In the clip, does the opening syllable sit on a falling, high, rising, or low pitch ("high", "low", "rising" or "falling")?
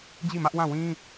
falling